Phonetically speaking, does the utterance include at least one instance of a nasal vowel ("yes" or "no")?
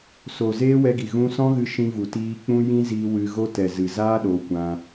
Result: yes